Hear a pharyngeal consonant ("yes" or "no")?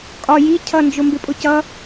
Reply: no